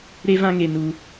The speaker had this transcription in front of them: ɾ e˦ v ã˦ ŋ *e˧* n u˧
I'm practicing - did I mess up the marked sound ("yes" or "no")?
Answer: no